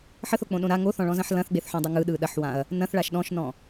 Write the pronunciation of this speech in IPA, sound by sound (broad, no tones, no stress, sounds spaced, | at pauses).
ħ ə θ o k͡p õ ɗ õ ɾ a ŋ o θ ɔ̃ ɭ ɔ̃ z ɐ̃ ħ l ɐ̃ θ ɡ͡b e θ ħ õ dˤ ɐ ŋ ɯ ɗ ɯ ɗ ɐ ħ w ã ɐ̯ | n ɐ̃ θ ɭ a ʃ ɗ ɔ̃ ʃ n ɔ̃